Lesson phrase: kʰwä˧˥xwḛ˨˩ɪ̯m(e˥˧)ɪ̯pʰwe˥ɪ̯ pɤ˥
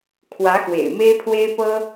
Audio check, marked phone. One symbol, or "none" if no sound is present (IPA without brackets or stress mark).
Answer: e˥